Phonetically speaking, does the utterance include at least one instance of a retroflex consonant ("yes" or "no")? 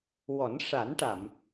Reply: yes